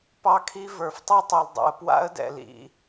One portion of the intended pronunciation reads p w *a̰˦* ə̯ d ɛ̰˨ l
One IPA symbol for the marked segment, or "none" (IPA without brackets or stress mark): a̰˦